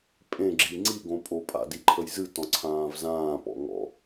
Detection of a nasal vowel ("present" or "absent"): present